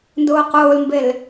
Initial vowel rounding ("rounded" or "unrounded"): rounded